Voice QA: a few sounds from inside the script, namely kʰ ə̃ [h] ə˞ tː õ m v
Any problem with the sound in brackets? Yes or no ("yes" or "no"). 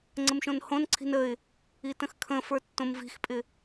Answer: yes